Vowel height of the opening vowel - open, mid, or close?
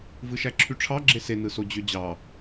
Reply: close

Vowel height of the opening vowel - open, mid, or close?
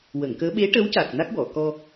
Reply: mid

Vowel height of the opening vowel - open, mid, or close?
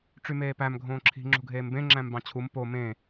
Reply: close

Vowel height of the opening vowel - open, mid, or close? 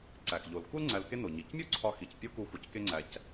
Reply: open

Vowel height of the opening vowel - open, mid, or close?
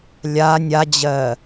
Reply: open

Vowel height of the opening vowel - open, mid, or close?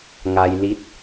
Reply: open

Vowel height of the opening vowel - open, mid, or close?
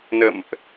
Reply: mid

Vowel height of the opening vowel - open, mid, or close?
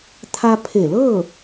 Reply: open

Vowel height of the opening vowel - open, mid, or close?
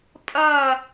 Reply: open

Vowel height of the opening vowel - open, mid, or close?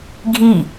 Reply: close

